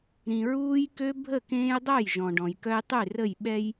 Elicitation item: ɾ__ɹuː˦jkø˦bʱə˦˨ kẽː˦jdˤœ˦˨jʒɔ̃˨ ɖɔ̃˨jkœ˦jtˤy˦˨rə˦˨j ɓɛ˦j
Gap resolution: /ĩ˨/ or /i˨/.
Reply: ĩ˨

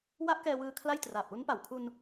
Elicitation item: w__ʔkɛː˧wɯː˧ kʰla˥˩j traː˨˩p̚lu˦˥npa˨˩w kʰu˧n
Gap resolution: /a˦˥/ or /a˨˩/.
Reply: a˦˥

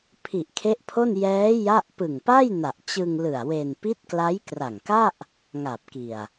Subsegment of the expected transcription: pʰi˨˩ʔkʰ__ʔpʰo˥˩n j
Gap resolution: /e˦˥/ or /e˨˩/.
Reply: e˦˥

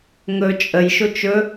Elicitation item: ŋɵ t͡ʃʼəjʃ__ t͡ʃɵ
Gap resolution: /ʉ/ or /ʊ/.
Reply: ʊ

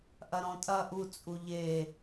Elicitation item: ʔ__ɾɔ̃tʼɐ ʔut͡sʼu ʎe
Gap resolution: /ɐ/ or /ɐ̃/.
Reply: ɐ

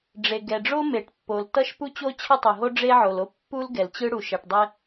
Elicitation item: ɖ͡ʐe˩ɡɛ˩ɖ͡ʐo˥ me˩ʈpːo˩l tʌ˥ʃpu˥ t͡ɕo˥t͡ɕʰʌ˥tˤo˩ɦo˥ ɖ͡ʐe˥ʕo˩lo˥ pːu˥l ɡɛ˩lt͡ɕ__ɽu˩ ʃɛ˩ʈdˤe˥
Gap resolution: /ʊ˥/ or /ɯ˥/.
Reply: ɯ˥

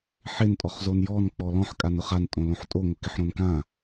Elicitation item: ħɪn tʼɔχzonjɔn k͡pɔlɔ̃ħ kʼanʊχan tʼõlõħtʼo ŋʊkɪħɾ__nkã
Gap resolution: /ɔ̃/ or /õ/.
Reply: õ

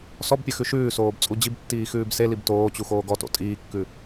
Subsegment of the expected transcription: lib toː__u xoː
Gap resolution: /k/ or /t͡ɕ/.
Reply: t͡ɕ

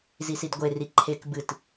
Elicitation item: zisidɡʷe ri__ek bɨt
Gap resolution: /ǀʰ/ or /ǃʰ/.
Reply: ǃʰ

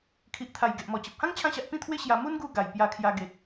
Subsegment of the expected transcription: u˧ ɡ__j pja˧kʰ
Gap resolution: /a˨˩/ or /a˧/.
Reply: a˨˩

